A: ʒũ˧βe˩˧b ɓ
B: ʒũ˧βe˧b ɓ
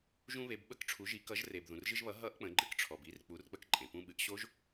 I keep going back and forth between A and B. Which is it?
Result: A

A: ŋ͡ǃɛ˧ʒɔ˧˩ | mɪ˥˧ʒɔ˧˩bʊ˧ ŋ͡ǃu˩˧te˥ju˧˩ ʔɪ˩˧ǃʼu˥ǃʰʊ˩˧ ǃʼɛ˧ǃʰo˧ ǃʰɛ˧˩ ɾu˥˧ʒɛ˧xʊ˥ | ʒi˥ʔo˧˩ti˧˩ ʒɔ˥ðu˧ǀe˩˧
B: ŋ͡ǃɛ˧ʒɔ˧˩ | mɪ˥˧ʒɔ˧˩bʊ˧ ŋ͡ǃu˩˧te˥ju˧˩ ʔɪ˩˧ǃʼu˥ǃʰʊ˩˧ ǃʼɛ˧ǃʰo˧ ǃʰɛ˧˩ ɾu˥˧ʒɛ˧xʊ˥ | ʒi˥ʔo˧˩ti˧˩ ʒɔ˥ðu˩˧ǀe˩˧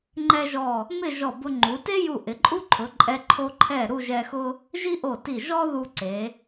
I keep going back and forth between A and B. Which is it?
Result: A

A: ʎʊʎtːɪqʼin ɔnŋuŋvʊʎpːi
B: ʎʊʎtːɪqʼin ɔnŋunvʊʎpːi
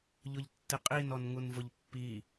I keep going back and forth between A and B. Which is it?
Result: B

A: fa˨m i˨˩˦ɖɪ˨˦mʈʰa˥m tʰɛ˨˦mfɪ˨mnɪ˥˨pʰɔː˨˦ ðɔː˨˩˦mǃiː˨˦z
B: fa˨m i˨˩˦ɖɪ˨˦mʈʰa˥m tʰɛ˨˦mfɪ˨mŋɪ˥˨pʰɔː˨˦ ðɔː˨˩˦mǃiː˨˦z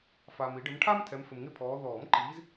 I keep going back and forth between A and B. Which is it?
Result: B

